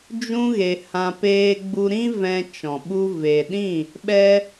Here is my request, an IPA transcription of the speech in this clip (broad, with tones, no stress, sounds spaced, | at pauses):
d͡ʒ ũ˦ ɣ e˧ h ã˧ p eː˧ ɡ͡b u˧ ɾ ĩ˦ v ɛ̃˧ t͡ʃ ɔ̃˨ ɓ u˧ v e˨ ɗ ĩ˦˨ | ɓ ɛ˧